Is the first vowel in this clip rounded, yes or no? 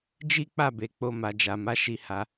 no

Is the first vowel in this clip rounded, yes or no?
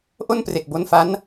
yes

